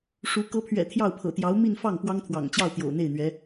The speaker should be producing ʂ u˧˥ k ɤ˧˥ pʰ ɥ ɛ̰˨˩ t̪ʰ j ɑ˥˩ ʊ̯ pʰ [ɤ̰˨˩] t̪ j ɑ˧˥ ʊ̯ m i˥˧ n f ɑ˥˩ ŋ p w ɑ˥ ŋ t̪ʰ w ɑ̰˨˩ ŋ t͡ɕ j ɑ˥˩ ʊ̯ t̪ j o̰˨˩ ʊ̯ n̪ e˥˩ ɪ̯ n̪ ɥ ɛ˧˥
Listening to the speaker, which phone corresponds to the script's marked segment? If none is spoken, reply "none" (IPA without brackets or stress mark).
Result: ɤ̰˨˩